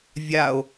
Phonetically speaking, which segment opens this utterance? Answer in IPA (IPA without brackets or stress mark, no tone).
vʲ